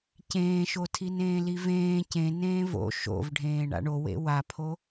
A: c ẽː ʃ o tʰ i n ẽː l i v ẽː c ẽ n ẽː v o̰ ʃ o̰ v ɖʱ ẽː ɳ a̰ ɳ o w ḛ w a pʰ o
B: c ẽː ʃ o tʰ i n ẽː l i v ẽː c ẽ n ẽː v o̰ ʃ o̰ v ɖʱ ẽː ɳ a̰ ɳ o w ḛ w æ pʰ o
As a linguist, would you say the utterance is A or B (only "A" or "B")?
A